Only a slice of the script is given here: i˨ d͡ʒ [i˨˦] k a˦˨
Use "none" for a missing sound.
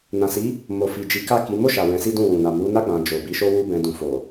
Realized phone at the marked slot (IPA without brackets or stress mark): i˨˦